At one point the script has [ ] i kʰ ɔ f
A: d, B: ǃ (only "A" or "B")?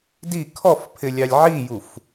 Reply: A